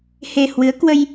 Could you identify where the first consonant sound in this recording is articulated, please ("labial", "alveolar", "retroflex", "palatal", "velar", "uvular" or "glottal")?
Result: glottal